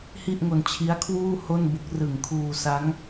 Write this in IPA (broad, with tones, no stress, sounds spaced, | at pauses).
h i˥˩ ʔ ŋ o˧ n t͡ɕʰ i˦˥ a̯ kʰ w uː˥˩ h o˥˩ n b o˦˥ k̚ r ɯ˨˩ ŋ kʰ uː˧ s a˦˥ ŋ